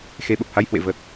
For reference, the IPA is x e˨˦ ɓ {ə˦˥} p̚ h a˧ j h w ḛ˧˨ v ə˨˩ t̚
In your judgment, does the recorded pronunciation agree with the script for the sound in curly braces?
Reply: no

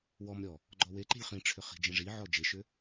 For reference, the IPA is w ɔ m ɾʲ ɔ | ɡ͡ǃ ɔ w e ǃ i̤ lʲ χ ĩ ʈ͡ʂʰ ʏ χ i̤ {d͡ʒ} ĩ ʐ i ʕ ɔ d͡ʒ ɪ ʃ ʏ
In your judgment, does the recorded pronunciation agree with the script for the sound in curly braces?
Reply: yes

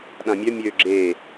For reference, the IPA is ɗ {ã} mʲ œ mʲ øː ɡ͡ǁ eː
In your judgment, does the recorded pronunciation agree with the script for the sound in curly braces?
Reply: yes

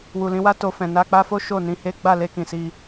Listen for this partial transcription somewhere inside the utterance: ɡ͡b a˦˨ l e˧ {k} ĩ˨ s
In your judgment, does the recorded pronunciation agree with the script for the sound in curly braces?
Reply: yes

